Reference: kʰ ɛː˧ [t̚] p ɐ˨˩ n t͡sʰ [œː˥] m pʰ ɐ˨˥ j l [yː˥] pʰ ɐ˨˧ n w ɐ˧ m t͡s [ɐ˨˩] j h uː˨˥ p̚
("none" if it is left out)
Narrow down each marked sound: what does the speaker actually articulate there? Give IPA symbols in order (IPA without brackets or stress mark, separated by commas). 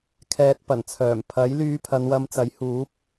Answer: t̚, œː˨˩, yː˧, ɐ˨˥